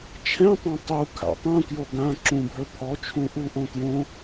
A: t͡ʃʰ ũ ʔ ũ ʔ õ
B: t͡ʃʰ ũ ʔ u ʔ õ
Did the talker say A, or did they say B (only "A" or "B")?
B